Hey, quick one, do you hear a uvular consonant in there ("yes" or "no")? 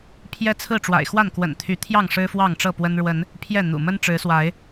no